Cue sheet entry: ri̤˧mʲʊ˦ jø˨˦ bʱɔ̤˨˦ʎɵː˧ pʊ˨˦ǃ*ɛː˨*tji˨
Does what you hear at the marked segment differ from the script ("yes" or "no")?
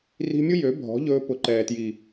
no